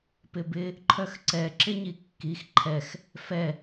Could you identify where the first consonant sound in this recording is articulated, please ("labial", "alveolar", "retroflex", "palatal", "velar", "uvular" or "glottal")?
labial